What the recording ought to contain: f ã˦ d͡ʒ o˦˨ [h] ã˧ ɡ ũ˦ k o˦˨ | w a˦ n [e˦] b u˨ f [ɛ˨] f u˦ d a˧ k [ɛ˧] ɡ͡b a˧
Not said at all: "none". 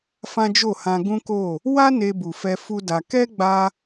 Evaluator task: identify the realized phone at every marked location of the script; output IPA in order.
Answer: h, e˧, ɛ˧, ɛ˦

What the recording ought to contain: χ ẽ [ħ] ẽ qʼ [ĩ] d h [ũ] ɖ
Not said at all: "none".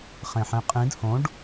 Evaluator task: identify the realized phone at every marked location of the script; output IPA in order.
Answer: ħ, ĩ, õ

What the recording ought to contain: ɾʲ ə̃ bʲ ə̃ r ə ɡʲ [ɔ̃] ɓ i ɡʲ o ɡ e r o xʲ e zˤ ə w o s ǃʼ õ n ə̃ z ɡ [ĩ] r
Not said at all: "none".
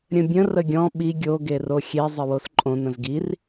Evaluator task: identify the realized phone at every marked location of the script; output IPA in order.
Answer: ɔ̃, i

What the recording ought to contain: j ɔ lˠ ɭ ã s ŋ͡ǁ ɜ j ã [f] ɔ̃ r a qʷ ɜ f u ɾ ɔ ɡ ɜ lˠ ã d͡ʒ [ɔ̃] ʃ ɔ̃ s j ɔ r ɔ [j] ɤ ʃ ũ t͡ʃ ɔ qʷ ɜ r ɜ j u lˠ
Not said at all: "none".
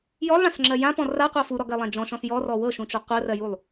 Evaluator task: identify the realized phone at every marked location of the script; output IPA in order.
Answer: p, ɔ̃, w

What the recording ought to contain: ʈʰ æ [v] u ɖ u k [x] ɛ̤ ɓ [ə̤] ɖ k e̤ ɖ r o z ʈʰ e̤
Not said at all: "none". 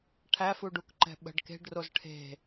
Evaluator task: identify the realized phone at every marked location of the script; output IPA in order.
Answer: f, ǃ, ə̤

